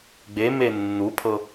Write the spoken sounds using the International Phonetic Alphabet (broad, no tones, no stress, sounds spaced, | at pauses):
ɡ͡b e m e nː u pʰ ɤ